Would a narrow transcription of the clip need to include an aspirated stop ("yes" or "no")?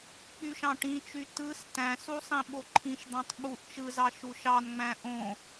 yes